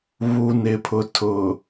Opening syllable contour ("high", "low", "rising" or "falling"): low